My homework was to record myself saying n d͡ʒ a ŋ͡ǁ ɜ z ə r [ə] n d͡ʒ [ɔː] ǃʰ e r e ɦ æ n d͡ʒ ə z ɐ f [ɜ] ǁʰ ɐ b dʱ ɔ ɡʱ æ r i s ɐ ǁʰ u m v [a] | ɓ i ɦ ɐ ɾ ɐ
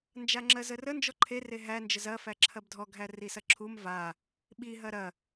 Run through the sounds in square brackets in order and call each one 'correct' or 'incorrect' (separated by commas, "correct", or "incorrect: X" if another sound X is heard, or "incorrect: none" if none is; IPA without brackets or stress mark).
correct, incorrect: ɔ, incorrect: æ, correct